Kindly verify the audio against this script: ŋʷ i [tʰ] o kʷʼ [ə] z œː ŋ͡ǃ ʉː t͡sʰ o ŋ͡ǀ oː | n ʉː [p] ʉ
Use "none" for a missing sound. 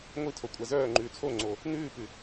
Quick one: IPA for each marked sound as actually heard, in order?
tʰ, æ, p

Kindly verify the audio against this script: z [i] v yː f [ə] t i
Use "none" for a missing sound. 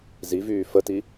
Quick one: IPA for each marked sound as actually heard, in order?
i, ə

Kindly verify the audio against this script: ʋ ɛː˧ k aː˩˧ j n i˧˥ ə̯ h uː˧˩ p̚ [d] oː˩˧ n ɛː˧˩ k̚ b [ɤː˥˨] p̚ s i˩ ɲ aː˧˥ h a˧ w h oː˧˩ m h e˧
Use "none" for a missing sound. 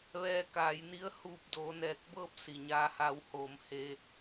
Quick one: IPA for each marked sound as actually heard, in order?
d, ɤː˥˨

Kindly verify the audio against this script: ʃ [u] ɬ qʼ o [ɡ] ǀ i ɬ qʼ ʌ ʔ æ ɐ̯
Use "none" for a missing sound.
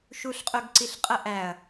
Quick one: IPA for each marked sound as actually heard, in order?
u, ɡ

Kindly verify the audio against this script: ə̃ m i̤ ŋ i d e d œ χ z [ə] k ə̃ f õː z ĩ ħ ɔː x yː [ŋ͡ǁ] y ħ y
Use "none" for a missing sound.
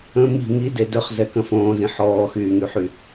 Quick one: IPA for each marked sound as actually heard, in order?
ɛ, ŋ

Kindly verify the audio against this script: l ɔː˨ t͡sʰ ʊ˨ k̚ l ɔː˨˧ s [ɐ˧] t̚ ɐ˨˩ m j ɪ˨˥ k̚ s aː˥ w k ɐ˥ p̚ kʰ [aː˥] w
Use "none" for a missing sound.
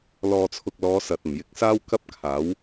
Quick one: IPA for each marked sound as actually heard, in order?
ɐ˨, aː˨˥

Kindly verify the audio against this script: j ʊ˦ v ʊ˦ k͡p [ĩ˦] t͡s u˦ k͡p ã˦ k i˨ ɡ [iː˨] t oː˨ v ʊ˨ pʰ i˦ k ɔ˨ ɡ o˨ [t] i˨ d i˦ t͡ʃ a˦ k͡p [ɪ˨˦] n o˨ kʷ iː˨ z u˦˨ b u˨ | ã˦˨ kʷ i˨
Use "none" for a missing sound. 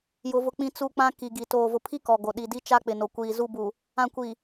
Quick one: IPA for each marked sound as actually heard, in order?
ĩ˦, i˨, ɗ, ɪ˨

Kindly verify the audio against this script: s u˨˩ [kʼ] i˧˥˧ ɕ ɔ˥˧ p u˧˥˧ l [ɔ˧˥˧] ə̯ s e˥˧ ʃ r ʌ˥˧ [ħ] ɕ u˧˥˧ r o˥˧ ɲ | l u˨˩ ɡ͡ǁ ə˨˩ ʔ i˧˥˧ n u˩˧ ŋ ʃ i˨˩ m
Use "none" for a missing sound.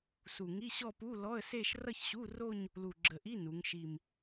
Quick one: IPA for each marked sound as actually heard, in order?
ŋ, ɔ˧˥˧, ç

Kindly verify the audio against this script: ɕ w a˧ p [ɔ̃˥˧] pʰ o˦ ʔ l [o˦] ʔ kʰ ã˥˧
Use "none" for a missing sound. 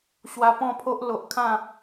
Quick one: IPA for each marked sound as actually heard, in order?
ɔ̃˥˧, o˨

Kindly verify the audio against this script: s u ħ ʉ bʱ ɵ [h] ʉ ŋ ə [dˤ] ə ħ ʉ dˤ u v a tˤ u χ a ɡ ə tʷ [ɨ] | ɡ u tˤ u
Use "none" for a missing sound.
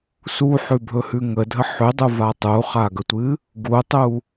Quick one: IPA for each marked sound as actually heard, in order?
h, dʱ, ɨ

